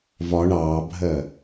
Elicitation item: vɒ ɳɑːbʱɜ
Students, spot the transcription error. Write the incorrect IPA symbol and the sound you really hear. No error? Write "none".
none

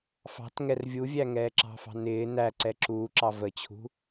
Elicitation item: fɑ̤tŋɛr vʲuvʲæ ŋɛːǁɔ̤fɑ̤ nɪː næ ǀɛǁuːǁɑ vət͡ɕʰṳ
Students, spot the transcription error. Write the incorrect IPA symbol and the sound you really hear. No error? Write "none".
ɔ̤ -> ɑ̤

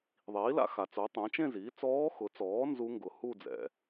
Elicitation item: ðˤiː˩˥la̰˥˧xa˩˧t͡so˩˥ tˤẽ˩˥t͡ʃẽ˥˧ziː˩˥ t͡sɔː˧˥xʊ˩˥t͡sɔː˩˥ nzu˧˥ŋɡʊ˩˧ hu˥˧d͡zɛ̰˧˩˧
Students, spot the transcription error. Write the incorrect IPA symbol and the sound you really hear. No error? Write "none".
none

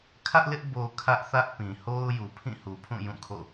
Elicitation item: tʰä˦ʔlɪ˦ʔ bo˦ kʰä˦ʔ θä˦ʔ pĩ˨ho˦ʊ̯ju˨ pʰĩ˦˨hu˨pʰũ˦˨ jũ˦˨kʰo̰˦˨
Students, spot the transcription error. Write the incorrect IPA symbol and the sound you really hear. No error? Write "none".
tʰ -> kʰ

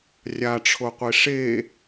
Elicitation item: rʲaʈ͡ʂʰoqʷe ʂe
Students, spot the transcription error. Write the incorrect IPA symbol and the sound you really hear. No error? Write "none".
none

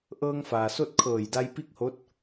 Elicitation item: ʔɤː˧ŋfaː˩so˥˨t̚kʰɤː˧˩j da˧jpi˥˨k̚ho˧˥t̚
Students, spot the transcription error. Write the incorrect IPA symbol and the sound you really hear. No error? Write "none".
none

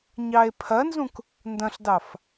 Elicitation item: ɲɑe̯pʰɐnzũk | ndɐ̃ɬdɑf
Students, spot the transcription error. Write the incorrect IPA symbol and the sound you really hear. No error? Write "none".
none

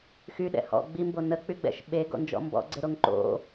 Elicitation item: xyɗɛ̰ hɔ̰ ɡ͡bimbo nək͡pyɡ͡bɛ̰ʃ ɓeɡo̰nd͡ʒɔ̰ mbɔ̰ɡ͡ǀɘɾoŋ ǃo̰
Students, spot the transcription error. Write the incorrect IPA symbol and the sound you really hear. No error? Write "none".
ɘ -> e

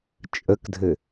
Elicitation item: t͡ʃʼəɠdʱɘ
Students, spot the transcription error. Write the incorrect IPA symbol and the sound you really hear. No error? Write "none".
ɠ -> k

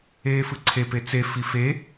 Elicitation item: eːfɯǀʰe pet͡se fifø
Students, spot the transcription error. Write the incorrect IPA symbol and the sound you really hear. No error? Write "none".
ø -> e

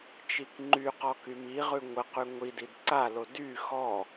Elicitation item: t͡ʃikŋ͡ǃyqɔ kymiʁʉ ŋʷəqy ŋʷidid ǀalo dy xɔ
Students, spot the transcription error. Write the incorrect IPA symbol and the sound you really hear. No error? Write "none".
none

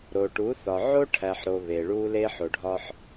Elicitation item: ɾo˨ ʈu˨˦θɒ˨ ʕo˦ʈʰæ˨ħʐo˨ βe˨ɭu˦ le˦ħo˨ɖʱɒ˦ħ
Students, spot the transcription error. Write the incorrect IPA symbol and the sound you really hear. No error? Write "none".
ʐ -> ɾ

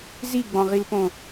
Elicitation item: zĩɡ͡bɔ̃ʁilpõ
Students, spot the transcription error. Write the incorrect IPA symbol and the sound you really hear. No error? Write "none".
ĩ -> i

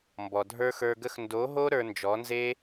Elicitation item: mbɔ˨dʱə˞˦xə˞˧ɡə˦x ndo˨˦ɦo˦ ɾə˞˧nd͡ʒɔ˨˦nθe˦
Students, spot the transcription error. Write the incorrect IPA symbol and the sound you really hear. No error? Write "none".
θ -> z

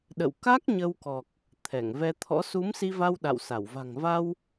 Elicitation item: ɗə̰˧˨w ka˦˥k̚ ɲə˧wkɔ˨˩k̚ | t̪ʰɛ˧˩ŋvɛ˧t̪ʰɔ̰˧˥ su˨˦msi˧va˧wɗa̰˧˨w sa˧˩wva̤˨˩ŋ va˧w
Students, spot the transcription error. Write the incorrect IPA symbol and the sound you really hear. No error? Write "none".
none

